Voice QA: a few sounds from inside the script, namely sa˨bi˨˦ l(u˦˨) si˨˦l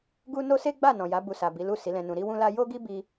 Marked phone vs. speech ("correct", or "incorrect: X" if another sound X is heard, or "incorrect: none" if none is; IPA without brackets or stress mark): correct